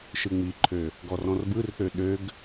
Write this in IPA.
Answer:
ʃɯŋ͡miǃʰø | ɡɔrɔ̃rbɯrθø ɗøɡ

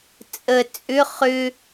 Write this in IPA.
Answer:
t͡sʼə t͡sʼʏ χʏ

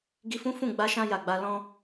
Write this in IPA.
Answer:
ɡi˧fũ˦ fũ˦˨ ɡ͡ba˧ʃã˧ ja˨ɡ͡ba˧ lɔ̃˧

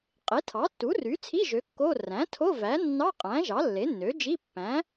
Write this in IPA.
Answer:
qʼe˩˥tʰɑ˩˥tːu˩˥ ry˩˥t͡sʰi˧˥˧ ʒø˩˥kːo˧˥˧ ræ̃˩˥ tʰo˧˥˧væ˩˥nːɑ˧˥˧qʼæ̃˩˥ ʒɑ˩˥lːe˩˥nːø˩˥d͡ʒi˧˥˧ pːæ̃˩˥

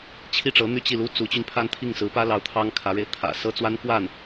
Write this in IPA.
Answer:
t͡ɕʰi˥˩ʈ͡ʂɤ˧˥n̪y˥˧ t͡ɕi˥˩lu˥t͡su˧˥t͡ɕy˧n pʰa˥˧nt̪ʰi˥˩ŋsɹ̩˧˥ pä˥lɑ˧˥ʊ̯ t̪ʰɑ˥ŋkʰä˧˥ɻe˧ɪ̯ t̪ʰä̰˨˩sɤ˥t͡swa˥nkwa˥˩n

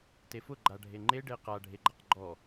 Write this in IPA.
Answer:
tefʊ ɡ͡ǃaɖʱeŋ͡ǃe ɖeqa ɖʱeɡ͡ǃaqɡ͡ǃɔ

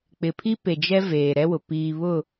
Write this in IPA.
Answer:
k͡pɪ˨pʰi˦ pe˨d͡ʒɛ˦ veː˨ɾɛ˦wʊ˨ piː˨βʊ˦˨

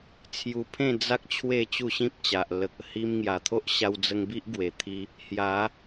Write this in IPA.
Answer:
t͡sʰju˧pʰẽ˥˧ d͡za˦k̚ t͡ɕʰwe˥˧t͡ɕu˥˧ɕĩ˦p̚t͡ɕa˨ʔ lə˨k̚ə˨˩ hi˧mŋja˨˩t̪ʰo˦ʔ ɕa˧wd͡zə˧ŋbi˦ʔɡwe˨˩ t̪ʰi˧ | hja˨˦

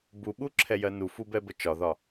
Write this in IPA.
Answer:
buɓuǁʰɛjɜ nufubɛbə t͡ʃɒðɒ

